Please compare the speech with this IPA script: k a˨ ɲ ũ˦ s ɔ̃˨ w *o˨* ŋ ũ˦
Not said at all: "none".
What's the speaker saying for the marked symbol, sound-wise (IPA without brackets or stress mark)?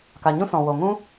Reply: o˨